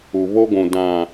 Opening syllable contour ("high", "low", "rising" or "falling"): low